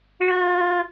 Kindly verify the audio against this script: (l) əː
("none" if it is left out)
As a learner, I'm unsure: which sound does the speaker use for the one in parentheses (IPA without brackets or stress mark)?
ɭ